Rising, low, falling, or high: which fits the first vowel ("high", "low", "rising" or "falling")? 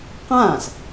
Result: falling